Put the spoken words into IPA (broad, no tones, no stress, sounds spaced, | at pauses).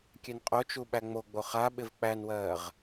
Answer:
kʲ ɛ n qʼ o t͡ʃ u ɓ æ ŋ͡m o ɡ͡b o χ a ɓ ɪ v k͡p æ n w ɜː ʁ